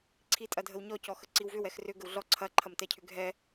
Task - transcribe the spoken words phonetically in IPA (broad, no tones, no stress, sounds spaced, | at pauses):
ǀʰ i tʼ ɐ dʱ ə w ɲ ɔ c ɔ x ə ǀ i w v ʏ w ɛ x r ʏ ɡ ə w ɮ ɔ ǀʰ ɐ ǃʰ ɐ m t ɛ cʰ ʏ ɡʱ ɛ